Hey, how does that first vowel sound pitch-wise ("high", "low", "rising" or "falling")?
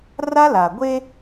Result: high